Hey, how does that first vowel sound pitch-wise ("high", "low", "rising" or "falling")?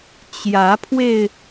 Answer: rising